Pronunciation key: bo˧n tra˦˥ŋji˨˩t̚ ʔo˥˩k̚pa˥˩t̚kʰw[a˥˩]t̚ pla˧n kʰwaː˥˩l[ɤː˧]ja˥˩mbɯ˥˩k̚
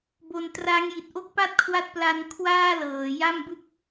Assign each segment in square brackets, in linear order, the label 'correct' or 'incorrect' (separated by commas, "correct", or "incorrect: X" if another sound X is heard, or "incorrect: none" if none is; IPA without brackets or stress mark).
incorrect: a˦˥, incorrect: ɤː˩˦